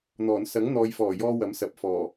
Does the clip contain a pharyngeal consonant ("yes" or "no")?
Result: no